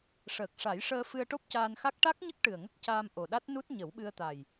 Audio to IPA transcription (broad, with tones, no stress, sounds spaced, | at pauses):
ʂ əː˨˩ k̚ ʂ a˨˩˦ j ʂ əː˧ f ɨ˧ ə̯ ʈ o˦˥ p̚ c aː˧ n x a˦˥ k̚ ʈ a˦˥ k̚ ɲ ə˦˥ k̚ ʈ ɨ˨˩ ə̯ ŋ ə˦˥ k̚ c aː˧ m ʔ o˨˩ ɗ a˦˥ t̚ n u˦˥ t̚ ɲ ə˨˩˦ w ɓ ɨ˧ ə̯ t̪ a˨˩ j